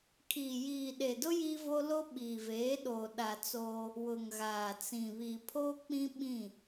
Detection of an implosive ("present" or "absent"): present